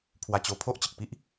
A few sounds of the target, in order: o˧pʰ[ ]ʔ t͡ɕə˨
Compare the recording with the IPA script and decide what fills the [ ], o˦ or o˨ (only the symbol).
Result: o˦